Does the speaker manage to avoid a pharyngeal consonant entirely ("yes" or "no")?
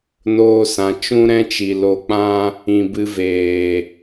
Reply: yes